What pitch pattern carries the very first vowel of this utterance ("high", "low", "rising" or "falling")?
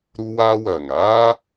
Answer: high